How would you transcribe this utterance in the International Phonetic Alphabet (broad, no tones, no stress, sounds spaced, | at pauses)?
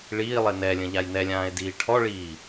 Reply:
ɭ iː lˠ e n ɛ lʲ ə̃ ʎ a j n ɛ lʲ ãː e̯ d iː ʈʰ ɔ ɭ iː